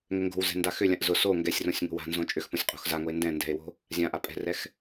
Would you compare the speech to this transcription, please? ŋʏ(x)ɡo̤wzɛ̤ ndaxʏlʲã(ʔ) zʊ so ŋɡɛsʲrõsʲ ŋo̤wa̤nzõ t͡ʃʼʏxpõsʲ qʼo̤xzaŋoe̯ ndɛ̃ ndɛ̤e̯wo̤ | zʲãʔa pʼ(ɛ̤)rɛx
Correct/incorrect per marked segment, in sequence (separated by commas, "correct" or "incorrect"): incorrect, correct, correct